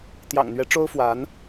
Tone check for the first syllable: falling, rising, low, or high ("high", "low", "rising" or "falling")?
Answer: low